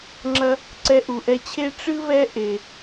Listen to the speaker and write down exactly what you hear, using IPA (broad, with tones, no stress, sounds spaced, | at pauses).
ŋ͡ǁ ɐ˧ | ǀ ɛ˧ ʔ u˩ ʔ ɛ˧ t͡ɕʰ e˥ ʈ͡ʂ ɨ˥ β ɛ˥ ʔ e˩